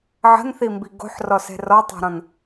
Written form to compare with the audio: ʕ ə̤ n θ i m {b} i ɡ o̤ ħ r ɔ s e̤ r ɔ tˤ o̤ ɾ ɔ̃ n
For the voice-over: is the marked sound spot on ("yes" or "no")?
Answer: yes